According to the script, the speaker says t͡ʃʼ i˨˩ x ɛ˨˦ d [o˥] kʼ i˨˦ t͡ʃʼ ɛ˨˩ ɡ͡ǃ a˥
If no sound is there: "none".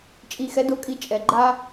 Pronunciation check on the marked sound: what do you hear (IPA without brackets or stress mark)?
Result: o˨˦